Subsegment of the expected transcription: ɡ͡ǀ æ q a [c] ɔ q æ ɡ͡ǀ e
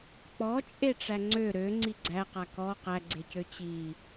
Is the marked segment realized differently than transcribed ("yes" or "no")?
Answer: yes